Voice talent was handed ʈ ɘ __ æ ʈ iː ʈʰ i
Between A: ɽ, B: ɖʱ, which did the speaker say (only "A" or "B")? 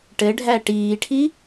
B